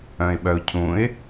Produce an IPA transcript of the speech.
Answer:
œ̃ɪ̯ɓœʊ̯cʰũɪ̯

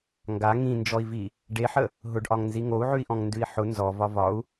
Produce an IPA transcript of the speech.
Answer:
ŋɡa ŋĩnd͡ʒɔi̯vi | ɖeħə | ɦʊɖʔɒŋnzi ŋou̯ʕʉi̯ʔɔ̃ŋndʉi̯ ħʊ nzɔvɒ vɒu̯

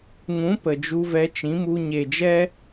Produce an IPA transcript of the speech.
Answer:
ŋũ˨˦ pə˨ d͡ʒu˧vɛ˧t͡ʃĩ˨˦mu˧ ɲe˨d͡ʒɛ˦

